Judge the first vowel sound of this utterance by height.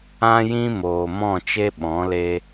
low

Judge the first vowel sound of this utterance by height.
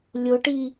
high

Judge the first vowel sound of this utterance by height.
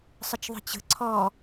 high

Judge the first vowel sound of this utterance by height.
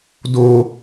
mid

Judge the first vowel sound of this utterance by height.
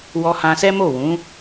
mid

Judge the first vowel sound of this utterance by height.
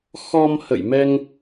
mid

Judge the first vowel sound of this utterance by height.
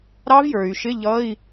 low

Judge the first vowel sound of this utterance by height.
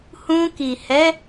high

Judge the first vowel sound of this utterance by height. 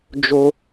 mid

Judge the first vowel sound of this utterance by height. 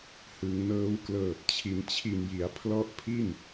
high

